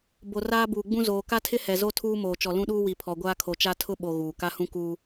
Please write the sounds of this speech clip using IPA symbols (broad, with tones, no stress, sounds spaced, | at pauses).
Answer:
b o˨ r aː˦ b uː˨ ɡ͡b ũ˦ z oː˨ k a˦ tʰ ɪ˦ h ɛ˨ z o˦ tʰ uː˦ m oː˨ t͡ʃ ɔ˨ l ũ˦ ɗ uː˦ w i˨ pʰ ɔ˨ ɡʷ aː˦ kʰ o˨ t͡ʃ a˦ tʰ ʊ˦ ɓ o˨ ɣ uː˨ k a˦ h ũ˦ k uː˦